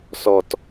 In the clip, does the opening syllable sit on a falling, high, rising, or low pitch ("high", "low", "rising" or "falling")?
low